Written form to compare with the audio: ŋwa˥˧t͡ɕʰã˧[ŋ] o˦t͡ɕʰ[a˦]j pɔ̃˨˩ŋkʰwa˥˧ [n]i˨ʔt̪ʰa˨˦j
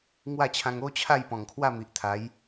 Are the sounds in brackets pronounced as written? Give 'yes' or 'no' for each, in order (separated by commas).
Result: yes, no, no